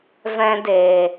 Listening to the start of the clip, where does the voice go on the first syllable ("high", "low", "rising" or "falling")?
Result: high